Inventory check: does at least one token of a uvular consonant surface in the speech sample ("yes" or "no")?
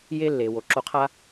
yes